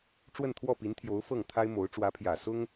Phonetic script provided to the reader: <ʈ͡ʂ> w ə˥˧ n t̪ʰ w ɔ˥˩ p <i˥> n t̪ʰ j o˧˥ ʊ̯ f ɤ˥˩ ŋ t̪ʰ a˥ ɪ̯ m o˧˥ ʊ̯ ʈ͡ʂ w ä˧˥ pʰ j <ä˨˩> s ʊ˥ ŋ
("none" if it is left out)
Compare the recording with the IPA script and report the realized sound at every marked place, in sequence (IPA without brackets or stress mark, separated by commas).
ʈ͡ʂ, i˧˥, ä˨˩